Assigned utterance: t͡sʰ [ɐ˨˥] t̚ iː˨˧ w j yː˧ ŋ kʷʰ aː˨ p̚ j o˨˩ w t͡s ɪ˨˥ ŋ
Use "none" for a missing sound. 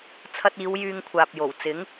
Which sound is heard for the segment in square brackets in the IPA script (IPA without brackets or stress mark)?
ɐ˧